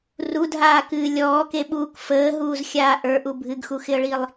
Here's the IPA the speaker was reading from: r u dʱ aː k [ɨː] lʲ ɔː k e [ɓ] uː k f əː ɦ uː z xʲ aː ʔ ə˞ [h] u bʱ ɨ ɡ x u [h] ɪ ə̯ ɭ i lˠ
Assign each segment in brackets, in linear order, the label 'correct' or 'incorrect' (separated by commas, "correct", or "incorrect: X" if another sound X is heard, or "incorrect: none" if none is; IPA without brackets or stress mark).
correct, correct, incorrect: ʔ, incorrect: x